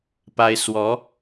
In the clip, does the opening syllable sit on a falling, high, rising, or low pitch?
high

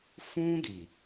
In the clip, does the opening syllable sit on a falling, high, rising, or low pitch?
high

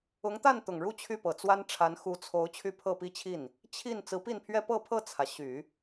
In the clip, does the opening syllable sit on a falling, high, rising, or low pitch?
rising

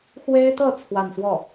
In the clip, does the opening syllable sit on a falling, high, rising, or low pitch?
high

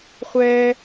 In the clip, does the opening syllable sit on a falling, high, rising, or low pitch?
low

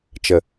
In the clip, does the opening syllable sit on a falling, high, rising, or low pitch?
low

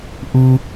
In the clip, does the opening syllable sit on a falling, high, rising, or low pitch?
high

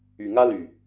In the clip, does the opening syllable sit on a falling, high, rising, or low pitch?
low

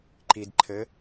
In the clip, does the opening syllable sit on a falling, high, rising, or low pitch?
low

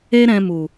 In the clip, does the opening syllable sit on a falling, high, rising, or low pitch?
high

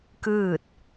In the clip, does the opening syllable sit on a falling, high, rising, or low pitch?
falling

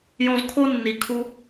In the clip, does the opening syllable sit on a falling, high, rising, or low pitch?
high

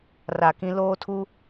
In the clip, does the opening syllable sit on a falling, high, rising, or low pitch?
low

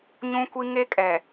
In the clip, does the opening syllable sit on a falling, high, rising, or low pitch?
high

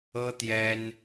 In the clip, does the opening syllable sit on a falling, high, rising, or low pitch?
high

